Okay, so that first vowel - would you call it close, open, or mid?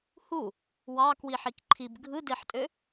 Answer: close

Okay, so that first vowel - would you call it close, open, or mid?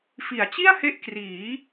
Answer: close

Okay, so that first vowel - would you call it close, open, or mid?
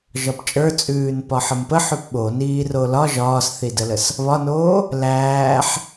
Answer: open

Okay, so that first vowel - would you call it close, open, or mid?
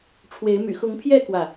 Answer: mid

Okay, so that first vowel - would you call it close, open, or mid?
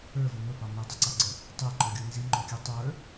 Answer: mid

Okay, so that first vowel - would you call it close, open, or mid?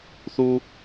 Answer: close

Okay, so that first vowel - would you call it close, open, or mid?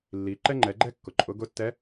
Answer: close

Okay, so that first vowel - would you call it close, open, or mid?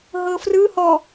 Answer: mid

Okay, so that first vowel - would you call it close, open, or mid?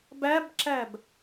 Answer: open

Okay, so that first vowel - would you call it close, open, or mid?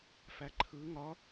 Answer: open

